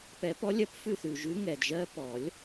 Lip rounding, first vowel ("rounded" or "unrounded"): unrounded